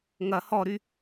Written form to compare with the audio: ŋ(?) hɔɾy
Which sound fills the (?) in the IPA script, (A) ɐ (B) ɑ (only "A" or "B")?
A